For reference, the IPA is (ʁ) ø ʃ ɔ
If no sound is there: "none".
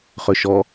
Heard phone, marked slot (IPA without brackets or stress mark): χ